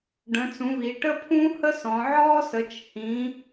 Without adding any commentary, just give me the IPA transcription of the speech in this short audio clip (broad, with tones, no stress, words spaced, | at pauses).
ɖə̃˨˦t͡sũ˨˦βi˨˦ ʈə˥pʰũ˥ hə˥sɔ̃˨˦ʕɔː˥sə˨˦t͡ʃ hĩ˨˦